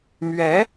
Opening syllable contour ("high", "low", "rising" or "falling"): rising